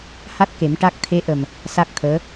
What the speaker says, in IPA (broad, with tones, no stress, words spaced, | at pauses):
ha˦˥t̚ke˨˩˦m ʈa˦˥k̚ t̪ʰe˧˥ʔə˨˩m | sa˦˥k̚t̪ʰəː˧˥